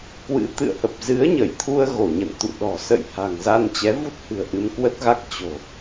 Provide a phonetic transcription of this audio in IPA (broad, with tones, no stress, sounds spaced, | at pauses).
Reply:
k w ɨ̰˧˥ t̪ ɨ̰˧˨ ə̯ h ə˨˩ p̚ z ɨ˨˦ ə̯ ɲ ə˧˩ j t̪ʰ u˧ ə̯ ɣ o˧˩ ɲ ə̰˧˨ n t̪ ṵ˧˨ ɗ ɔ̤˨˩ s ə̰˧˨ j h a̤˨˩ ŋ z a˧ n t͡ɕ ɛ˨˦ v u˦˥ t̚ h ɨ̤˨˩ ə̯ ʔ ɨ˧ m k w ə˦˥ t̚ ɣ a˦˥ k̚ t͡ɕ o̤˨˩